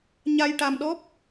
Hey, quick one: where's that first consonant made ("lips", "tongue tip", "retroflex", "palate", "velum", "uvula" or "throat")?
palate